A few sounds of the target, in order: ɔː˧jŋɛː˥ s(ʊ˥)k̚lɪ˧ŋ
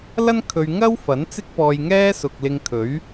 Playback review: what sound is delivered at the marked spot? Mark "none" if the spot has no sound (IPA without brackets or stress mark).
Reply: ʊ˨